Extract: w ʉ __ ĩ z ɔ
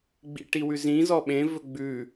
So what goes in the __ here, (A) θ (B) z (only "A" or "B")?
B